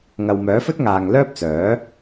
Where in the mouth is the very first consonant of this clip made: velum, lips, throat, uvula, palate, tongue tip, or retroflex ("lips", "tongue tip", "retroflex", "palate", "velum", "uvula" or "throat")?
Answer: velum